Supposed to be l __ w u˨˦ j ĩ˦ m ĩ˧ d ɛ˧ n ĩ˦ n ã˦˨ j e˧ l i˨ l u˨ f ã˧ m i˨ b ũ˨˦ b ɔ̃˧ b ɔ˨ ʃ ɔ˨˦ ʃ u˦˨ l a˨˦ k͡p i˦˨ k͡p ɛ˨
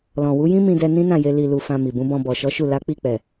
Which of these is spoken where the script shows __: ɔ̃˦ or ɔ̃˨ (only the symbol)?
ɔ̃˨